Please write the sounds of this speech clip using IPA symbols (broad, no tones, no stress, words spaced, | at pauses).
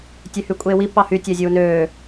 tʲøhykʷʼeːwi pɑhy tʲæzʲuːnøː